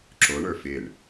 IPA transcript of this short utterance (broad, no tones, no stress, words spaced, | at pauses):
ǁoɳə˞ fɪɳ